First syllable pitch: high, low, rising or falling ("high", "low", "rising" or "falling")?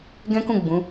high